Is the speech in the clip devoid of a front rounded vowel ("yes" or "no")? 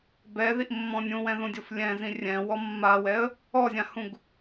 yes